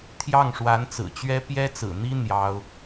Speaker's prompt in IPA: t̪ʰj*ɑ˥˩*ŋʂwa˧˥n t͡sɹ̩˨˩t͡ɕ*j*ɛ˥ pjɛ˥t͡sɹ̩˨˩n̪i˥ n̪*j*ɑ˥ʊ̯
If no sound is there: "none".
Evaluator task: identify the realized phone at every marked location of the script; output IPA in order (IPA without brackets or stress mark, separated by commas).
ɑ˥˩, ɥ, j